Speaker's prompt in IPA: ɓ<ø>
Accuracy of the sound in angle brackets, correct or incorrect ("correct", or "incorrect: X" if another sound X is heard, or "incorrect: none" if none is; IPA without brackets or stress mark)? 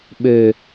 correct